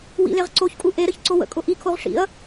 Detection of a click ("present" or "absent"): present